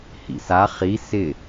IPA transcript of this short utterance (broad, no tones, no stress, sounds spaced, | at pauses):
h ḭ s a χ i s ɪ